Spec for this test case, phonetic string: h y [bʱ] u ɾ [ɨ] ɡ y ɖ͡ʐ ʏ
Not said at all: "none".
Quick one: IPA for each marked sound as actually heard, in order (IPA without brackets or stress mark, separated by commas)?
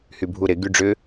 bʱ, ɪ